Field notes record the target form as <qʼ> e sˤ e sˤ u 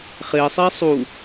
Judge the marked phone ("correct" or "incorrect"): incorrect